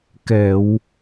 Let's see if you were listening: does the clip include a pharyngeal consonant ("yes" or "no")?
no